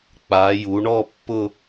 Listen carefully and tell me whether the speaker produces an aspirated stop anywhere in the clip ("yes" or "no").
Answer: no